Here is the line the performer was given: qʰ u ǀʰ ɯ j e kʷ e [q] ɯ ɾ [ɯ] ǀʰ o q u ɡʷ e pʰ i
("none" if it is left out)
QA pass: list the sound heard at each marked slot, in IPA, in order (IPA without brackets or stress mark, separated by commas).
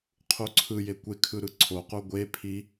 kʰ, ɯ